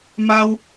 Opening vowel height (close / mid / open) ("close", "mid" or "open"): open